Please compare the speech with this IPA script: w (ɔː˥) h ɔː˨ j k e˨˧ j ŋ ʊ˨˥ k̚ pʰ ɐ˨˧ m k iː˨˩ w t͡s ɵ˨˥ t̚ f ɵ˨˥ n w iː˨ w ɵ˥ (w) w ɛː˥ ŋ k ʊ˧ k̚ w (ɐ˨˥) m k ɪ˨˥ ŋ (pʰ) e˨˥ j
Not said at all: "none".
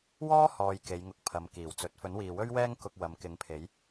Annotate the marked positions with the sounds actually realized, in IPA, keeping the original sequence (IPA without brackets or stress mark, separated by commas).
ɔː˥, ɥ, ɐ˨˥, pʰ